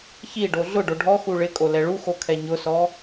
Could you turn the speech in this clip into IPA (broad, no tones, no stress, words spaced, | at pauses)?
çi ɖoɮʊɖo ɖʱɔxu ɭɪkʼo lɛɭuxo kʰɛɲʊsɔ